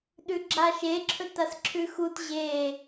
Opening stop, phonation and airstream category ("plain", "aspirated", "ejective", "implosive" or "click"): implosive